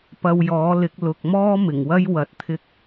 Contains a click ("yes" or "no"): no